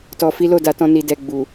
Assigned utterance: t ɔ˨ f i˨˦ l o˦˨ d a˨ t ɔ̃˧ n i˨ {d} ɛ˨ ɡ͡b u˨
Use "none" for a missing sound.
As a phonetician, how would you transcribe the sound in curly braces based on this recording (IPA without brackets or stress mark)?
d